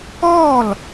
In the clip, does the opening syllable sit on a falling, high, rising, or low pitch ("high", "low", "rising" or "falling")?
falling